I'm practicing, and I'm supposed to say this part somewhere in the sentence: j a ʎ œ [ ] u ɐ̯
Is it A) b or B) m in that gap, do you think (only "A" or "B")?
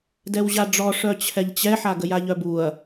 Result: A